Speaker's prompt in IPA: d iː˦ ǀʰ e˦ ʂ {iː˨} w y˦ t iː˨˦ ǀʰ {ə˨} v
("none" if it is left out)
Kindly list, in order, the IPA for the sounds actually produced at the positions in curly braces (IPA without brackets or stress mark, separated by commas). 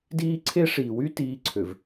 iː˨, ø˨